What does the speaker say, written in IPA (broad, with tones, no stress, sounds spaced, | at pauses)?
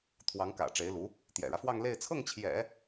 t̪ʰ w ɑ˧˥ ŋ k ä̰˨˩ ʈ͡ʂ e˧˥ ɪ̯ l u˧˥ | t̪ j ɛ̰˨˩ ɻ ä˦ f w ɑ˥˧ ŋ l e˥˧ ɪ̯ t͡sʰ ɤ˥˩ ŋ t͡ɕʰ j ɛ̰˨˩˦